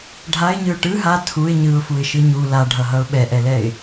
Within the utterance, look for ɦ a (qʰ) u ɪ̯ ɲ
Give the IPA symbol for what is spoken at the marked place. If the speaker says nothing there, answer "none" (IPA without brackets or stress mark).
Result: tʰ